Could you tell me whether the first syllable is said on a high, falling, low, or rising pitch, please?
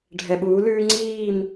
low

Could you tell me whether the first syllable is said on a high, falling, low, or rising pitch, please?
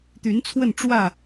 rising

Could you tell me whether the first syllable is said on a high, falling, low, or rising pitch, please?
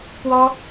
high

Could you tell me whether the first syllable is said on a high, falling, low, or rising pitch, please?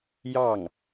falling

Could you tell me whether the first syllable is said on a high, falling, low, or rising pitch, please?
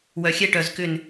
low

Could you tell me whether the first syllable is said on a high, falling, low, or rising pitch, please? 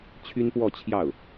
high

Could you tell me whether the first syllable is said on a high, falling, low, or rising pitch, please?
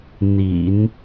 low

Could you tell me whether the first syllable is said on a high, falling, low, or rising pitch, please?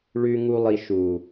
low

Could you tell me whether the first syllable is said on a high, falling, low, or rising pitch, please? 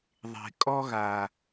low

